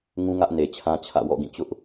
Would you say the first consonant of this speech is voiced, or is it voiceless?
voiced